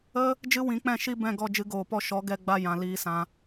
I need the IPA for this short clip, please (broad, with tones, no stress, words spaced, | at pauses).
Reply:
ə˦ | d͡ʒɨ˦wĩ˨˦k͡pɛ̃˦˨ ʃi˦bɛ̃˦˨ ɡɔ˦˨d͡ʒɨ˧ɡoː˨pɔ˧ ʃɔ˨˦ɡɛ˧ ɡ͡ba˧jã˨ liː˧sã˧